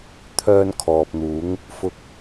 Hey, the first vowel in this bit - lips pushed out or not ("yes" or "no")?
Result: yes